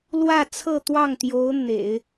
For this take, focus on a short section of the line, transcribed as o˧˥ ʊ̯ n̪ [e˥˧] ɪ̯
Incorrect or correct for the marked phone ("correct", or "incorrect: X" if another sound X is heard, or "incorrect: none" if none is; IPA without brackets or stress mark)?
incorrect: ḛ˨˩˦